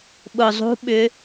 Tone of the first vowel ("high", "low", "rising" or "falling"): low